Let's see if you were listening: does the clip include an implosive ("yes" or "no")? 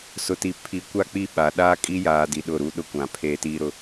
yes